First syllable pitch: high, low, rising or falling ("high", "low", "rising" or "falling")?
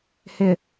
low